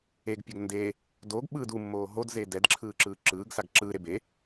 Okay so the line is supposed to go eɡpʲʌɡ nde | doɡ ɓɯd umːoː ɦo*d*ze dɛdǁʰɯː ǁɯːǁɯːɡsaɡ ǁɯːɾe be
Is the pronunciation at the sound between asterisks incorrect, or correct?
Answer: correct